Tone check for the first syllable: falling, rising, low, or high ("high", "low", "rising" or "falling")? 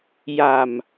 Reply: low